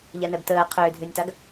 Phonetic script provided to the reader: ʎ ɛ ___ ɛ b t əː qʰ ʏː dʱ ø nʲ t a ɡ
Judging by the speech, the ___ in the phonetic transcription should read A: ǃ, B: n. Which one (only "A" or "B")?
B